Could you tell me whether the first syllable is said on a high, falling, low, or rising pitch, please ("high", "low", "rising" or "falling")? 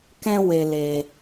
high